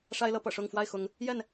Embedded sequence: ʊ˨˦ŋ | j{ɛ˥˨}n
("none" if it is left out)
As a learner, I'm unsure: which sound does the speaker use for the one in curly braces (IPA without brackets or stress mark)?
ɛ˥˨